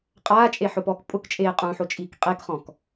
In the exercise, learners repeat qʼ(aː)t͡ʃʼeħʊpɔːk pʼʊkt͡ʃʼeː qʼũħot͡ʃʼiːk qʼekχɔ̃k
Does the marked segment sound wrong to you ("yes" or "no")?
no